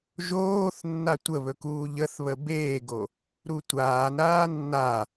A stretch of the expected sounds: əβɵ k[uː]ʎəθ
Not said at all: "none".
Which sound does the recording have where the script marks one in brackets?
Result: uː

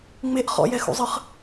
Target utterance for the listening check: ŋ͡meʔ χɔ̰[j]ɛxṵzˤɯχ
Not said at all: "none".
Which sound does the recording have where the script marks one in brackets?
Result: j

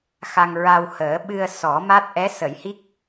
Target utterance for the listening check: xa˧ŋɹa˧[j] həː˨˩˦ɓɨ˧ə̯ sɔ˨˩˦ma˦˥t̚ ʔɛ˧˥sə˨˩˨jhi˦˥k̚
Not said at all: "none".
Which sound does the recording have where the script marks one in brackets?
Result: w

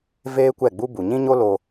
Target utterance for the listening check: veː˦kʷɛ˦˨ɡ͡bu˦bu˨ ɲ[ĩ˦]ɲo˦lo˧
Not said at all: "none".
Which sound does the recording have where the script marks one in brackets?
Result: ĩ˦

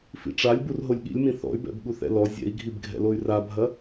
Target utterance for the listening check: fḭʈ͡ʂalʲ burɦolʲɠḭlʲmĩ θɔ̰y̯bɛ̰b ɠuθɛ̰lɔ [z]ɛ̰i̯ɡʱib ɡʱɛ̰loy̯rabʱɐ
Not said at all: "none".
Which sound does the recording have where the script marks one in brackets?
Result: zʲ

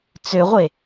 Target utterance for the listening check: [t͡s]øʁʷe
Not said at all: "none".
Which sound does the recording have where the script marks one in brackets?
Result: t͡s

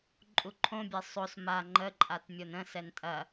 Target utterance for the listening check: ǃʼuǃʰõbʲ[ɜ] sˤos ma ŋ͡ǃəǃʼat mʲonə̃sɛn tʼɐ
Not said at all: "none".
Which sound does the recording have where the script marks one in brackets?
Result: ɜ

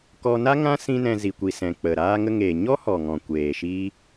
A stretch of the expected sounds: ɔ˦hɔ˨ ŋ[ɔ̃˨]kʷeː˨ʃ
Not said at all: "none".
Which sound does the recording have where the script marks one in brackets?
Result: ɔ̃˨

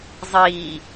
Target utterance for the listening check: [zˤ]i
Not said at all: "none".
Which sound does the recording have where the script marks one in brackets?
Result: zˤ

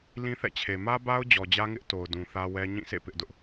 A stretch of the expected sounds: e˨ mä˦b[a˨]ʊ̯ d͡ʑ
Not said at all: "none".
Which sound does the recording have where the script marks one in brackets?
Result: a˦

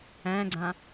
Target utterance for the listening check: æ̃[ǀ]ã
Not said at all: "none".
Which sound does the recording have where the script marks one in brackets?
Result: ɡ͡ǀ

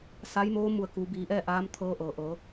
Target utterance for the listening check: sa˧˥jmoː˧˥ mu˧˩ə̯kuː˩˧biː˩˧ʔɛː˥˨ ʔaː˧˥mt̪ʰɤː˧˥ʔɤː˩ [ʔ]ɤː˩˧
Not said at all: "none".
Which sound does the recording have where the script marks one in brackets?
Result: ʔ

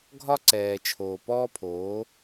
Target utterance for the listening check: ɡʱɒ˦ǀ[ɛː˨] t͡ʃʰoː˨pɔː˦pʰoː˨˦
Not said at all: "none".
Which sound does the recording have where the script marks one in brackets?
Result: ɛː˨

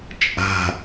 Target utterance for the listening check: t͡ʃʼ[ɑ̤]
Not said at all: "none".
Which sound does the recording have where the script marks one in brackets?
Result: a̤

